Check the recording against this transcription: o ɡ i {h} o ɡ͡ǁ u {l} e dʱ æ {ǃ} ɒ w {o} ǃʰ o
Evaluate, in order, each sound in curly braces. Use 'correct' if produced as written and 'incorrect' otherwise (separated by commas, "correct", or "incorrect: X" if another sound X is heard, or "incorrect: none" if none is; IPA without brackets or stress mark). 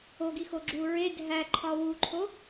incorrect: x, incorrect: ɹ, incorrect: ǃʰ, incorrect: u